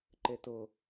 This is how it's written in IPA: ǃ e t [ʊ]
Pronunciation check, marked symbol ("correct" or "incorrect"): correct